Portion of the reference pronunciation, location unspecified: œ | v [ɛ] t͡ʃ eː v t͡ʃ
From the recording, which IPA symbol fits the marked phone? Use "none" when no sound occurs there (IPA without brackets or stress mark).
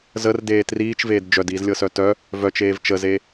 œ